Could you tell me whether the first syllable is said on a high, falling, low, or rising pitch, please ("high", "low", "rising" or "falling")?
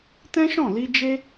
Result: high